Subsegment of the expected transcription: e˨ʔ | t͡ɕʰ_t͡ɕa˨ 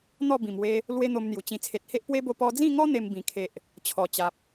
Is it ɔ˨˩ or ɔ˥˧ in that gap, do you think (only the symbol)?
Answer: ɔ˨˩